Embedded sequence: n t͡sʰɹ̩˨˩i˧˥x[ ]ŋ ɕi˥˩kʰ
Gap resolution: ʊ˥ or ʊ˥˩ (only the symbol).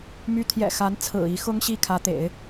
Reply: ʊ˥